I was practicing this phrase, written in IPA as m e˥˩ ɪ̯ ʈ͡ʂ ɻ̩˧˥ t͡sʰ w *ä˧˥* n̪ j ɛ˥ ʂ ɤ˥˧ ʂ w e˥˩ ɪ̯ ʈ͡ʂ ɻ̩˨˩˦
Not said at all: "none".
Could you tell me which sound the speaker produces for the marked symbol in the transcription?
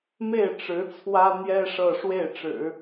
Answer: ä˥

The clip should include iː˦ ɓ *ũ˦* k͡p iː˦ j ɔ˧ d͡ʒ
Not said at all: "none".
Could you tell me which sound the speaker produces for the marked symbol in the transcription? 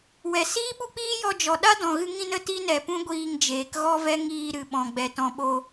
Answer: u˦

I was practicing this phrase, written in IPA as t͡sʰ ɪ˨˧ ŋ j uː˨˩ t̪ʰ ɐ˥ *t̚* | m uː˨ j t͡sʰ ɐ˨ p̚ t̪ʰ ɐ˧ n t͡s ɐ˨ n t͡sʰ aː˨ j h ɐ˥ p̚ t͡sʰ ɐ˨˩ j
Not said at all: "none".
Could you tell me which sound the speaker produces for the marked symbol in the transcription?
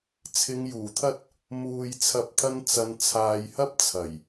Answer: t̚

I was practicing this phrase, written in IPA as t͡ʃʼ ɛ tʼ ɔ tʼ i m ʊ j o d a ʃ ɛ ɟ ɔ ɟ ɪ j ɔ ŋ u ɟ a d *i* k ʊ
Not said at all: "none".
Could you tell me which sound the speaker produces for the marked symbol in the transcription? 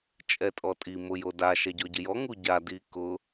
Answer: i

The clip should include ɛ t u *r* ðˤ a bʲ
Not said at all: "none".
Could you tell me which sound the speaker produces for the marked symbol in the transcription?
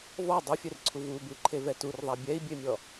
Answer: r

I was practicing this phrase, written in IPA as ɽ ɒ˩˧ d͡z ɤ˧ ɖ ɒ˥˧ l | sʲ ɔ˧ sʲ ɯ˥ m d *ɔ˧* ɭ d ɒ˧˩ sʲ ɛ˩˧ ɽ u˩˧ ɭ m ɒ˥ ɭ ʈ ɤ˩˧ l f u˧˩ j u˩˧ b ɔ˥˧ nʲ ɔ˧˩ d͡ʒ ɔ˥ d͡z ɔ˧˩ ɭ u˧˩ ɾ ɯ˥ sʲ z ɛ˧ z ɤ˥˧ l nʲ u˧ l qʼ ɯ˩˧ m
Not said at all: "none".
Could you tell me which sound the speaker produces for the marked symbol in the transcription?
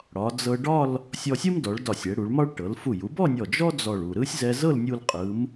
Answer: ɔ˩˧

